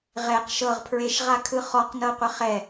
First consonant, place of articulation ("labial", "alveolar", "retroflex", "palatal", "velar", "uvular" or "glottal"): uvular